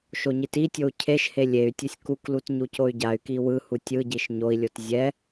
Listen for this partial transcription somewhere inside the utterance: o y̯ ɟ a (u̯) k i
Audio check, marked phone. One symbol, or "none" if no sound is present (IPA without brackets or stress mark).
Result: y̯